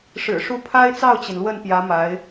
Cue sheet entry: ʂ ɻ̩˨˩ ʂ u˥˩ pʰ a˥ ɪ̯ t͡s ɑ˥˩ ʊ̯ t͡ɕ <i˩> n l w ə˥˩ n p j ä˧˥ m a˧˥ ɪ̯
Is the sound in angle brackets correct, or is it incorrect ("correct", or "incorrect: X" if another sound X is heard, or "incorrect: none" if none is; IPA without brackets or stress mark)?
correct